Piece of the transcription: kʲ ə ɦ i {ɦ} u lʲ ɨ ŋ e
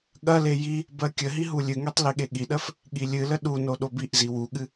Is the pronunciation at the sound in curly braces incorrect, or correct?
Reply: correct